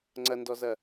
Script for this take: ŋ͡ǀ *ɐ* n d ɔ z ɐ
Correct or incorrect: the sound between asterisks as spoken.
correct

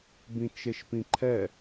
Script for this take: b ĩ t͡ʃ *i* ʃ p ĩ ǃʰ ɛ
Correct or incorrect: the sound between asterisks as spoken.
incorrect: e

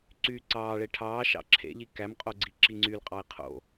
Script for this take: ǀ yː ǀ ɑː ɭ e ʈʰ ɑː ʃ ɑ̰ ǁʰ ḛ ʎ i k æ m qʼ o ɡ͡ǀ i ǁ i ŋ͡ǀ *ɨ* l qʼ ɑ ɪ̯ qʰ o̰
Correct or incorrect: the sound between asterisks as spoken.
incorrect: y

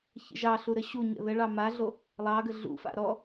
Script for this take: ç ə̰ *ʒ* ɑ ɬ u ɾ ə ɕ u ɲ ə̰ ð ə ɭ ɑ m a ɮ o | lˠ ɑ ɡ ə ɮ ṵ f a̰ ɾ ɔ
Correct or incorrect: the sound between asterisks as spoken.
correct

